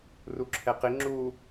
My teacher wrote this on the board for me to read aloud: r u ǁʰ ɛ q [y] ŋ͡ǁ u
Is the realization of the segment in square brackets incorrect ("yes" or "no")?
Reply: yes